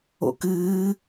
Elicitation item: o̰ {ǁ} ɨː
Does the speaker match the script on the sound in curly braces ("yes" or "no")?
no